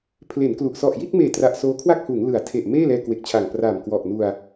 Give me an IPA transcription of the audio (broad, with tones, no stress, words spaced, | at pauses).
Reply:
pʰle˩˦nklu˨˩ʔ sɔ˨˩ʔji˥˩t̚meː˨˩ tra˨˩ʔ soː˦˥kʰwa˥˩k̚huː˩˦ŋ lɯ˩˦a̯ tʰe˨˩ʔ meː˥˩lɛː˧kwe˨˩k̚t͡ɕʰa˨˩ŋ pra˨˩mkwɔ˨˩ʔnu˧a̯